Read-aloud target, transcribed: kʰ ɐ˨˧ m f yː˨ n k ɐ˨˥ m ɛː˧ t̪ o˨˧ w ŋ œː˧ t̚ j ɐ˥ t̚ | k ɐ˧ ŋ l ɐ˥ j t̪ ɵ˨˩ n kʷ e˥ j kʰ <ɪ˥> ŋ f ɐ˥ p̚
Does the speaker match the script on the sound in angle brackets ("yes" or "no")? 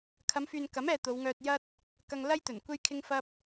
yes